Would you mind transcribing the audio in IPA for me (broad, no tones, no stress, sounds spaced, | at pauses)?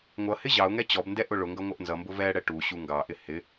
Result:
ŋʷ ʌ h ɪ ʑ ɑ ʊ̯ ŋ ɛ t͡ɕ ɔ b n d ɛ ʔ ʊ ɭ ʊ ŋ ɡ ʌ ŋʷ ʌ ʔ n z ʌ m b ʊ v ɛ ɽ ɛ ʈ u ɕ u ŋ ɡ ɑ ʔ ɪ h ɪ